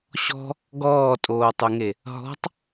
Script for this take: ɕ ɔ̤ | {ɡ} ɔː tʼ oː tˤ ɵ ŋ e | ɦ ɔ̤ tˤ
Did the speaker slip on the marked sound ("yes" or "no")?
no